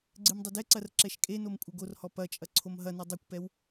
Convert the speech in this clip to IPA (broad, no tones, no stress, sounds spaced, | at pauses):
ɡ͡ǀ ɨ m dˤ ɐ d ɛ ǀ ɐ r ǁ ɛ ʃ kʼ e n o m kʷʼ ɘ ɡ o r h ɔ p ɐ t͡ʃʼ ɐ ǀʰ o m ɦ ɐ n u dˤ i kʷ p ɛ w